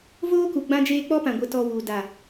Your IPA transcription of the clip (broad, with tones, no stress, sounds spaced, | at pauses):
v oː˦ k u˨ ɡ͡b ã˧ d͡ʒ eː˧ k͡p ɔ˦ p ã˨ ɡʷ ə˨ t ɔ˨ w u˨ d a˨